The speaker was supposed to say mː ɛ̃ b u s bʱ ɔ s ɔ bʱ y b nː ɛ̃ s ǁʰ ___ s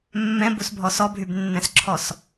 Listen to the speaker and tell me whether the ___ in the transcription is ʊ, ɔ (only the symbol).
ɔ